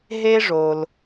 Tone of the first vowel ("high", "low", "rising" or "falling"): high